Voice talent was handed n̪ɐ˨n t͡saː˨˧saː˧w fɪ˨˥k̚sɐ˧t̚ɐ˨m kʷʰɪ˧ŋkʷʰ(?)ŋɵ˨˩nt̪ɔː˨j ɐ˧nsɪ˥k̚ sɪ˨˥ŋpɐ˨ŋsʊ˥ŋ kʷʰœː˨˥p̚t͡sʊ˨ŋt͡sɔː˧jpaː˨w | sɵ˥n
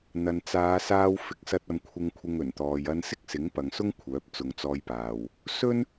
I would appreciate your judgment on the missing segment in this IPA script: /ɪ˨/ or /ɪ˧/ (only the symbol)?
ɪ˧